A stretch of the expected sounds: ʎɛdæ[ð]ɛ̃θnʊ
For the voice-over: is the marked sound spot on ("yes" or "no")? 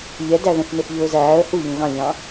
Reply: yes